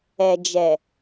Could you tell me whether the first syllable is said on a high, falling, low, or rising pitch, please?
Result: low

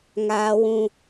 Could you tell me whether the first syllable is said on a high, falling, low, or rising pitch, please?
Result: high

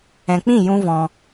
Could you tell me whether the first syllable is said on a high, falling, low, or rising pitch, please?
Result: low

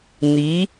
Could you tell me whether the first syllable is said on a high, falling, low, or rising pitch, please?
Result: rising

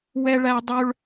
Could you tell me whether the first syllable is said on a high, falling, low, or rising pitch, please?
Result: high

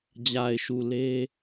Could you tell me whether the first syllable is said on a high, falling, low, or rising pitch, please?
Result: low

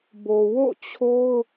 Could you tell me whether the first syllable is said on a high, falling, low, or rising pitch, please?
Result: low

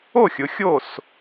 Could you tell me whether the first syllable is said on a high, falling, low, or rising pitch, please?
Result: falling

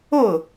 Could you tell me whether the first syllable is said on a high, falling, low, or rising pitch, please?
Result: falling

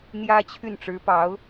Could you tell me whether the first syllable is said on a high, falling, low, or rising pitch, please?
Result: high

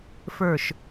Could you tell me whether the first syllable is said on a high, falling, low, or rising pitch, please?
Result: falling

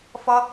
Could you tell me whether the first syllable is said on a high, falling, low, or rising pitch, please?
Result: high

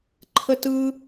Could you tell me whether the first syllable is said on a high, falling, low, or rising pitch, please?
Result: high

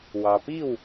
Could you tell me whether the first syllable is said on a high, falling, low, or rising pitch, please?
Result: low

